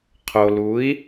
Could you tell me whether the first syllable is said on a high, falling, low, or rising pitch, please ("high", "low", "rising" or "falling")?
low